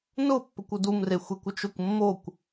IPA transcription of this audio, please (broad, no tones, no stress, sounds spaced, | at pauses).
n ʊ pː ə kʷ u d u m r e xʷ e kʷ ʏ t͡ʃ ʊ kʷ mː o kʷ